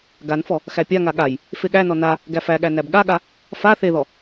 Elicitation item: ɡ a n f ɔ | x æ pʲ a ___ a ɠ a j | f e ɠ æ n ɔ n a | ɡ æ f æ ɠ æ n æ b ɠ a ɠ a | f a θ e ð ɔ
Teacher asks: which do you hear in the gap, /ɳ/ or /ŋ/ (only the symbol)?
ŋ